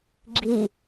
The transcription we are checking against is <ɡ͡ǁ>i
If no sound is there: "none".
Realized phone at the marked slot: ɡ͡ǁ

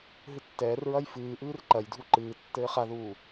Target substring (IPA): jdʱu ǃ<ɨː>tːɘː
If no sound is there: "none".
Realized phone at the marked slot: ɨː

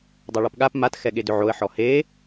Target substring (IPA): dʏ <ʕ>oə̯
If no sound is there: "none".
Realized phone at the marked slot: ʕ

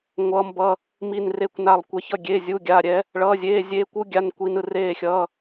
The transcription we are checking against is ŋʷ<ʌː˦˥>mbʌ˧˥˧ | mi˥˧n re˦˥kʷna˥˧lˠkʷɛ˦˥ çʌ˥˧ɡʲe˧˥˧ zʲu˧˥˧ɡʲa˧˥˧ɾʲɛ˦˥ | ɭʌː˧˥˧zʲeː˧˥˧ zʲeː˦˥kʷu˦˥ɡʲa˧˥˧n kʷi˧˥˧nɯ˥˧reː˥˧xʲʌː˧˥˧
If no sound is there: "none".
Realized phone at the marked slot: ʌː˦˥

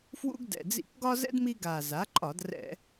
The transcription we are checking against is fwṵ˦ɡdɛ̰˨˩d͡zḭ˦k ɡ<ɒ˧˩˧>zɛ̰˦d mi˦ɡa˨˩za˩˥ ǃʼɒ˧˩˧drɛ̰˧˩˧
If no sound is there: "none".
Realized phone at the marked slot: ɒ˦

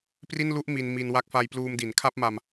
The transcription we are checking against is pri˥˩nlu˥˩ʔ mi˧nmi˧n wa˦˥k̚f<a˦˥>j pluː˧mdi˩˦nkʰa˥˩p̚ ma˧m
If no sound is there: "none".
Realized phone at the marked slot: a˧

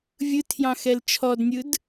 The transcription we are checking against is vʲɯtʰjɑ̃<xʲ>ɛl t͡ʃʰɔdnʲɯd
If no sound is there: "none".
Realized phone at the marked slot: x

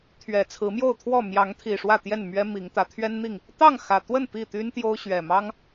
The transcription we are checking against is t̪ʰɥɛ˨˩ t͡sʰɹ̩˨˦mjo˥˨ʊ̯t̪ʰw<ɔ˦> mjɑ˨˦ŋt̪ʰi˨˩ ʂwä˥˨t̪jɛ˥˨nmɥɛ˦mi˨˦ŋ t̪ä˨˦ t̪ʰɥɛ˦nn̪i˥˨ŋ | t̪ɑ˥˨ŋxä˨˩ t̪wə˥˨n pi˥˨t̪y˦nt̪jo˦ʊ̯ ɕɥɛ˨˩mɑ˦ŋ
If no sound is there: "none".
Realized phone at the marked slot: ɔ˥˨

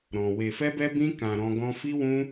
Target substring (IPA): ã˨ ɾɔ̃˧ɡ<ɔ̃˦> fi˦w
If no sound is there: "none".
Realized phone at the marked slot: ɔ̃˦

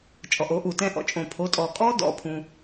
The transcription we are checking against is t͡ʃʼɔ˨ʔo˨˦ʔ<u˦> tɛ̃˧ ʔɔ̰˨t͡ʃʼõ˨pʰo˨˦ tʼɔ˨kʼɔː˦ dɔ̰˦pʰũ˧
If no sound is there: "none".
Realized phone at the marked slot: u˨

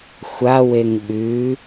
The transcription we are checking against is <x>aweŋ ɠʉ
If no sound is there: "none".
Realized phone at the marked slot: xʷ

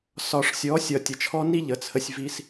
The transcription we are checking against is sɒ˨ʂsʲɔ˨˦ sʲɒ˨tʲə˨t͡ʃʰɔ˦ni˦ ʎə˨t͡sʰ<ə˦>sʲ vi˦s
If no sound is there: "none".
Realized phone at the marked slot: ə˦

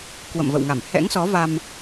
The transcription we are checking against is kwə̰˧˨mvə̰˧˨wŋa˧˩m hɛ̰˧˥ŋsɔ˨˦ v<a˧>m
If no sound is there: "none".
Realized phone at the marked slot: a˧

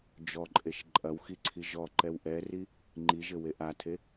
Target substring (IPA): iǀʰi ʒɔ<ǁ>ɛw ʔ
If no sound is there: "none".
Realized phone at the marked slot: ǃ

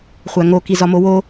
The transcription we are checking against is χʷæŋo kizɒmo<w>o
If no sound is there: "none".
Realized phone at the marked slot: w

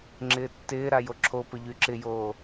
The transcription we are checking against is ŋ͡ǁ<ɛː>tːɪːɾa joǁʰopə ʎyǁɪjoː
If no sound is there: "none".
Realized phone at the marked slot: ɪː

